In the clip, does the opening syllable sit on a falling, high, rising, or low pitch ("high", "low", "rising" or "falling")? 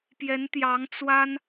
rising